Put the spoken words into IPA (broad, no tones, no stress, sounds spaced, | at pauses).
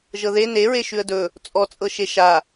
ʒ ɤ ð e n e ɹ e ʃ ʉ ə̯ d ɵ | t͡sʼ ɔ t͡sʼ ɤ ʃ e ʃ a